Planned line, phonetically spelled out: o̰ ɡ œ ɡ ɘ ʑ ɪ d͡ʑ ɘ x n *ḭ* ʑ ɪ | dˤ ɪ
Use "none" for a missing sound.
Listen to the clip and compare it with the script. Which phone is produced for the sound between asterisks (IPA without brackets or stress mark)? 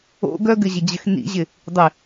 ḭ